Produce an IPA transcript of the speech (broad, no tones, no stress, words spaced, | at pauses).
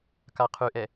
kaqʰʉʔɛ